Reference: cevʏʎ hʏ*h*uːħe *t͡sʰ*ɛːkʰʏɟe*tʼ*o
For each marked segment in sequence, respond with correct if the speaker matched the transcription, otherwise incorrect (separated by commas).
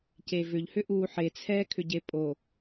incorrect, correct, incorrect